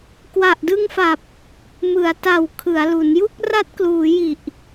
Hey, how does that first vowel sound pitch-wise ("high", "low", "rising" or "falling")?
low